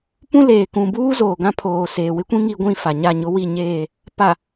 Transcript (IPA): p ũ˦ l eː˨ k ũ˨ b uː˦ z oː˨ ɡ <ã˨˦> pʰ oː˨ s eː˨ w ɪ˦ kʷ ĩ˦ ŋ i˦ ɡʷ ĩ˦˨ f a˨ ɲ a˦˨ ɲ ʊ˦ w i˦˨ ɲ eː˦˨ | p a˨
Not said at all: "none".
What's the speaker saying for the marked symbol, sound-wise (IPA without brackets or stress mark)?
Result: ã˦